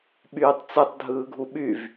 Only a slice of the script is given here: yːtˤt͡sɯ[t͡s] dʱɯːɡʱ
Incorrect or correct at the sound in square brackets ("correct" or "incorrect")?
incorrect